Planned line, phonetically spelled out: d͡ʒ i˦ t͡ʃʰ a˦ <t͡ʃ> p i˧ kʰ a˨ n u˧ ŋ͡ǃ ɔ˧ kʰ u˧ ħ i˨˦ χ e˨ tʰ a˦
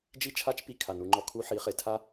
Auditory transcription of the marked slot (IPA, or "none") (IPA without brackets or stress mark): t͡ʃ